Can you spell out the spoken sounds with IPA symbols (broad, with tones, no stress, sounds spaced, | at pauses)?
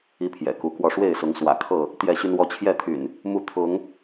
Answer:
i˦ pʰ j ɛ̰˨˩ k u˨˦ k w ɔ˥˨ ʂ w e˥˨ ɪ̯ s ʊ˨˦ ŋ s w ä̰˨˩ kʰ ɤ˥˨ | t̪ j ɛ˥˨ ɕ y˦ n w ɔ˦ t͡ɕʰ j ɛ˥˨ t̪ʰ y̰˨˩ n | m u˥˨ t̪ʰ ʊ˨˦ ŋ